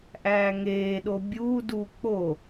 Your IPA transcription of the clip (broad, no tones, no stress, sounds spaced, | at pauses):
ʔ æː ŋ eː ɗ o bʲ uː d u k͡p o